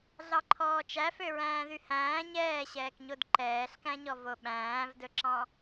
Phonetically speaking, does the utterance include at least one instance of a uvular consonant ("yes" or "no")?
no